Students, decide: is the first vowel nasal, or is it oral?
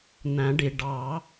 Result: nasal